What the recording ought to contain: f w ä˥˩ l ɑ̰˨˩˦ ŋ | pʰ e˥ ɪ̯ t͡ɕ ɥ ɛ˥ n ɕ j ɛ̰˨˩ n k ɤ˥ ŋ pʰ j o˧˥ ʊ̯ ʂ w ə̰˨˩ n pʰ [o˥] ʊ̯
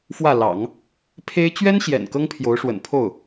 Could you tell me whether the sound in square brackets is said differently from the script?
yes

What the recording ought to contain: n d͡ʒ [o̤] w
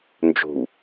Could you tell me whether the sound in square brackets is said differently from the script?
no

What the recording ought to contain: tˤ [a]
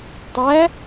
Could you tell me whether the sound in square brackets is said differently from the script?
yes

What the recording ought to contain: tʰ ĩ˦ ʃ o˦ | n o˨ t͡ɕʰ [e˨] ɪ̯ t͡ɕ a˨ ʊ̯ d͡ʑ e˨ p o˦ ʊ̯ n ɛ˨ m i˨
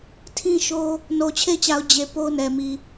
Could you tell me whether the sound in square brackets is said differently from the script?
yes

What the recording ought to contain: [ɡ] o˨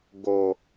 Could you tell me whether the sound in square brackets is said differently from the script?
no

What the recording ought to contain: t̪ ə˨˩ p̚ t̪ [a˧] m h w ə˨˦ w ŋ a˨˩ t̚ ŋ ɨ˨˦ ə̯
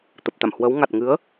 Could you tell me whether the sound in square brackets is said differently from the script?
yes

